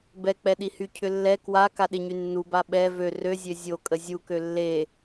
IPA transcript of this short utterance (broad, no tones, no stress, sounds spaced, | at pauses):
b ɛ k͡p ɛ ɗ i h y cʰ ʏ lː ɛ k w a k a ɗ ɪ ɲ y nː u b a ɓ ɛ v ø r ø zʲ ø zʲ o kʼ ə zʲ u k ø lː e